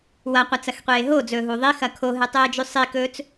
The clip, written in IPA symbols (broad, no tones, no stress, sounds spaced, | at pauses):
w ɐ qʷ ɐ t͡s ɐ x qʷ eː ɦ o d͡z ɵː ɦ uː ðˤ i x ɐ kʰ o ɦ ɨ tˤ eː d͡ʒ ʉ sˤ i k ɵː t͡s